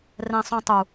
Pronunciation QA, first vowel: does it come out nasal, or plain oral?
nasal